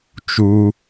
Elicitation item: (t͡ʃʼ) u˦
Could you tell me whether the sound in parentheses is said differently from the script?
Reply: yes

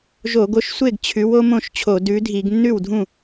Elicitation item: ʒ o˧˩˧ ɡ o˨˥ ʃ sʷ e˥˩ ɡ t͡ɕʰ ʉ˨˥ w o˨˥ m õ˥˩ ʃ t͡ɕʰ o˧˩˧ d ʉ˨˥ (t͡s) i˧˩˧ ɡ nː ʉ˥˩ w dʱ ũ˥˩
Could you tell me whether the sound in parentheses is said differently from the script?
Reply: yes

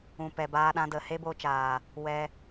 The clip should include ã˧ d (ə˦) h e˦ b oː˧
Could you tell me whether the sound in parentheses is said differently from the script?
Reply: yes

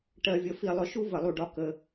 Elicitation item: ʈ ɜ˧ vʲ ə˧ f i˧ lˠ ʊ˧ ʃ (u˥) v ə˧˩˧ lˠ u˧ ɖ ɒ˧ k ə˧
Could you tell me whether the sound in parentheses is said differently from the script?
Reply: no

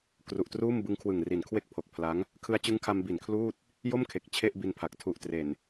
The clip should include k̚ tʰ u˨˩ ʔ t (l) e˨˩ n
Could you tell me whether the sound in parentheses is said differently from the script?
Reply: yes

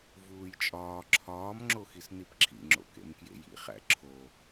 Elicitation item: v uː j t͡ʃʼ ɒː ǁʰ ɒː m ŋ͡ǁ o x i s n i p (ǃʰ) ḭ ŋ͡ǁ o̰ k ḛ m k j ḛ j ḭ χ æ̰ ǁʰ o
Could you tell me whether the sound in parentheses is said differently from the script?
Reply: yes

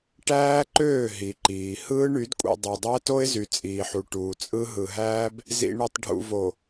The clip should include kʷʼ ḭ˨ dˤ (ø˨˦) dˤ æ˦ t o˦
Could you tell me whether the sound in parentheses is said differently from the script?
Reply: yes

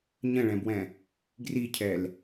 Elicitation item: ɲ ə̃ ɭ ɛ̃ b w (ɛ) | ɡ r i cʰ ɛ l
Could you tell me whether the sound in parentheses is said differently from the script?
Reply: yes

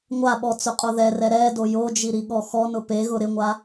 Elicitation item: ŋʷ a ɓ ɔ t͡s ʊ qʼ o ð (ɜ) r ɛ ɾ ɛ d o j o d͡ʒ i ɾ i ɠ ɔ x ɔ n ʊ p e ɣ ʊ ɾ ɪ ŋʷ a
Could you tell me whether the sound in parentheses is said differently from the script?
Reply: yes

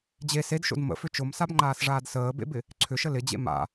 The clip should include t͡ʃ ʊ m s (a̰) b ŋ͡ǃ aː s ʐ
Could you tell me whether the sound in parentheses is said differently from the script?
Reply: yes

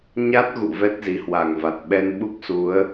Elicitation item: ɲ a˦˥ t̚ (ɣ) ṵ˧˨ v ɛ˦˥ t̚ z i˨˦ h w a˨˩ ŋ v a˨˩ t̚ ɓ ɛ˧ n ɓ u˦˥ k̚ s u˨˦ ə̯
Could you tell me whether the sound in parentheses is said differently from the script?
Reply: no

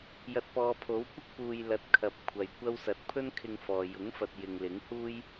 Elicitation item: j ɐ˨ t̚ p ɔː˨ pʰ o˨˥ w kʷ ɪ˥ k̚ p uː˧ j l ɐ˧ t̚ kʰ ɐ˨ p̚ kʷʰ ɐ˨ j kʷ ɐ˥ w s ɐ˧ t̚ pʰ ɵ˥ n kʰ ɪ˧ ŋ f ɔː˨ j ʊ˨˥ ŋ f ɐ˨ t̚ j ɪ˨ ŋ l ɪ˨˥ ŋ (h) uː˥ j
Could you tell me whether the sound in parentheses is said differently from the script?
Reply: no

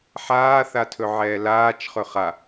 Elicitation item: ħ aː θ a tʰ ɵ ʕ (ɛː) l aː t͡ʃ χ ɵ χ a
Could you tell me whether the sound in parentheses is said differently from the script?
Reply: no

